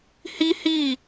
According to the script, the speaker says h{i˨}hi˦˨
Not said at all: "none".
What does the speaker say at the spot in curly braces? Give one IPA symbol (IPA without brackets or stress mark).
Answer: i˦